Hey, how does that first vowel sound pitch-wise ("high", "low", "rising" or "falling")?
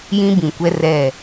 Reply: high